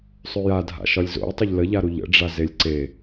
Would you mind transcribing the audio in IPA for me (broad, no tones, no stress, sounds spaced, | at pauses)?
sˤ ø j a dʱ a̰ ʃ ɒ lʲ z o̰ j tˤ ə ʎ l ə ʎ a ɾ u ʎ ə̰ ɖ͡ʐ a z e lʲ ǀ e